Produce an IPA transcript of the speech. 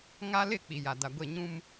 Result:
ŋ a˦ l ɪ˦˨ k͡p i˨ j a˨ d a˨ ɡʷ e˦˨ ɲ ũ˦ m

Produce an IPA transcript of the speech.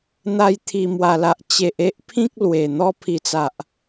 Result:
n̪ a˧ j t̪ʰ i˨˩ m w a˨˩ l a˨ ʔ t͡ɕ e˨ ʔ e˦ ʔ pʰ ĩ˦ k̚ l w e˨˩ n̪ ɔ˧ pʰ i˨˩ t͡s a˨ ʔ

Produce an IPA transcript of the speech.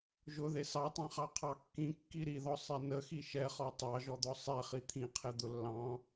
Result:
ʒ ʊ ð e s ɑ tˤ ĩ χ ɑ qʰ ɑ kː ĩ kː i ɾ i ð ɔ sˤ ɛ n ə x i ʃ ɛ χ ɔ tˤ ɑ ʒ ɔ d̪ ɔ sˤ ɛ χ i t̪ʰ ĩ qʰ ɛ d̪ ʊ lː ɑ̃

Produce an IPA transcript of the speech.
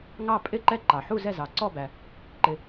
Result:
ŋ ɑ˦˨ pʼ ɪ˦˨ ǃ ɛ˦˨ ǃ ɑ˩ ħ u˦˨ z ɛ˦˨ z ɑ˩ ǀ ɔ˦˨ b æ˩ | ǃ ɪ˩

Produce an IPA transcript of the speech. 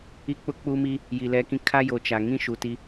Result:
i˦ k͡p ʊ˦ k͡p u˦ m i˦ | j i˨ l ɛ˦ k ĩ˦ kʰ a˦ j o˨ t͡ʃ a˨ ŋ ĩ˦ ʃ u˨ t i˦

